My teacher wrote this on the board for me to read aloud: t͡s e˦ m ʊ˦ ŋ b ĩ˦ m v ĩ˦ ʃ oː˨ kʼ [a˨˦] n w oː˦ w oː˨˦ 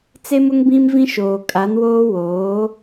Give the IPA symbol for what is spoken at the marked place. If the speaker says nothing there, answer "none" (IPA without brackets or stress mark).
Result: a˨˦